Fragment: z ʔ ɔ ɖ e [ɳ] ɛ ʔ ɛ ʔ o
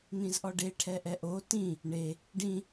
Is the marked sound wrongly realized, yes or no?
yes